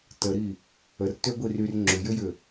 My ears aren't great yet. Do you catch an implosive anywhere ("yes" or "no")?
no